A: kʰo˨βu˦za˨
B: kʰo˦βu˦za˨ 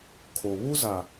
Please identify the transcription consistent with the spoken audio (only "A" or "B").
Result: A